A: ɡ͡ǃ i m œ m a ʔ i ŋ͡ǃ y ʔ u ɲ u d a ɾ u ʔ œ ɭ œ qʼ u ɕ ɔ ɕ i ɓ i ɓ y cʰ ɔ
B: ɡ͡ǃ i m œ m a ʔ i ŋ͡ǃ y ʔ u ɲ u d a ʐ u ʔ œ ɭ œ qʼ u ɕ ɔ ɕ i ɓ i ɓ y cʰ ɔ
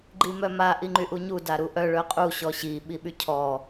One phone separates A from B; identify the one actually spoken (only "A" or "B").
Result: A